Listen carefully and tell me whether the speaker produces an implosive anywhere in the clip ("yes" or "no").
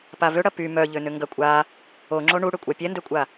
no